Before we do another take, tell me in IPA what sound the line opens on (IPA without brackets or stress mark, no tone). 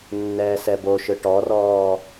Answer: nː